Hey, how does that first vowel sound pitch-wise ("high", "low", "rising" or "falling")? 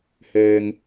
low